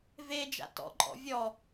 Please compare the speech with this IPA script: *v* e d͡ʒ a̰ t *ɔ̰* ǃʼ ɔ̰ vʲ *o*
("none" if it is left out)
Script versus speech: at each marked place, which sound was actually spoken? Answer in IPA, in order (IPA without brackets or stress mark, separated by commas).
v, ɔ̰, ɔ